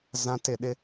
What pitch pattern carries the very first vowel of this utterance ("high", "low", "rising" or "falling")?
high